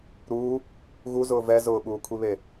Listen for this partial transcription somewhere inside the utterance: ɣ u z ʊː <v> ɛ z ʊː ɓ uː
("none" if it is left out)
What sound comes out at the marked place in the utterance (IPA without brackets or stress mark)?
v